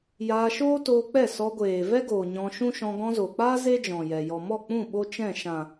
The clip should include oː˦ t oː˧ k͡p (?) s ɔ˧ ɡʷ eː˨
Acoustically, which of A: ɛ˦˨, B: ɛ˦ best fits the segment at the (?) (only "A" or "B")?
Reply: A